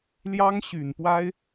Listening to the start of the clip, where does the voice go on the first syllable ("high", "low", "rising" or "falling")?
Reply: high